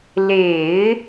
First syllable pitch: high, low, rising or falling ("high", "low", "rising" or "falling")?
low